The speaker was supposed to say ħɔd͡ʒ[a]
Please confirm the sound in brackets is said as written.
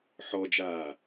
no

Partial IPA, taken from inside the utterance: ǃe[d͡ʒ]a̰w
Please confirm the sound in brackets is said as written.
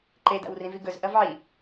no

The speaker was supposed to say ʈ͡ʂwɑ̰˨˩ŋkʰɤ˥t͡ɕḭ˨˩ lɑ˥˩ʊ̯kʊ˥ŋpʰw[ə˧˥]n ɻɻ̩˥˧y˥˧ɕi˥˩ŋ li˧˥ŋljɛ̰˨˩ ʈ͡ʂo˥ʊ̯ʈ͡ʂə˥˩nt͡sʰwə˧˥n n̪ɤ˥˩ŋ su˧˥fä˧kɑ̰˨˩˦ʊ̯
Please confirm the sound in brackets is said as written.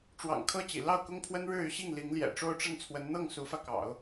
no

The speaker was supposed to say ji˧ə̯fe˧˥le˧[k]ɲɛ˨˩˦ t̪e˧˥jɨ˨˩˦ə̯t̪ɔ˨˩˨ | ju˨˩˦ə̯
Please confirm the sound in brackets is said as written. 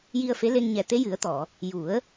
no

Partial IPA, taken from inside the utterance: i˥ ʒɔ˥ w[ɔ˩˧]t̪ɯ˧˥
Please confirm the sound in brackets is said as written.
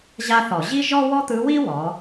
no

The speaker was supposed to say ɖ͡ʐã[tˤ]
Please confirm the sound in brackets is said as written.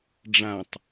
yes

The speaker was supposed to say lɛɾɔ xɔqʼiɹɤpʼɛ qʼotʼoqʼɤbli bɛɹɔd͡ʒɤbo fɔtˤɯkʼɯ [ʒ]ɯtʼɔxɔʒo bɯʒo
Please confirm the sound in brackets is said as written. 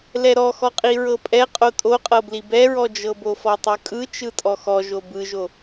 no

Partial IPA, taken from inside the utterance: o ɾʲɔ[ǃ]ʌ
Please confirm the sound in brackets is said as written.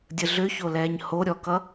no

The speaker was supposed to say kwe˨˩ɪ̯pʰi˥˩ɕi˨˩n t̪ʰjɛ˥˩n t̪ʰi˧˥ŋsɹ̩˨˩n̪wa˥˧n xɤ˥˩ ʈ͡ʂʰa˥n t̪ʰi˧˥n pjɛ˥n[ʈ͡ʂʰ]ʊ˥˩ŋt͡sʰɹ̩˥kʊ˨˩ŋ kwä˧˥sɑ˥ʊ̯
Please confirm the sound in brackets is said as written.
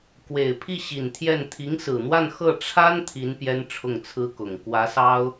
yes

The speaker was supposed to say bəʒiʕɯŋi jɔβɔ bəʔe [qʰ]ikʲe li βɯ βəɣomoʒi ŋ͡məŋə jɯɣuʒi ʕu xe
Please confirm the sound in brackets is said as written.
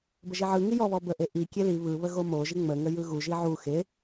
no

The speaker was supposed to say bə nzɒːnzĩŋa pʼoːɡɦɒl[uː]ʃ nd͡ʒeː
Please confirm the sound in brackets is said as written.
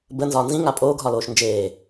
no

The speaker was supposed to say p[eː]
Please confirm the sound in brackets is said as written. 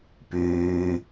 no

